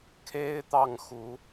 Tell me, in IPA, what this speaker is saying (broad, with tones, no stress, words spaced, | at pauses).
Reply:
kʰe˥ɪ̯t̪ɑ˥˩ŋxu˧˥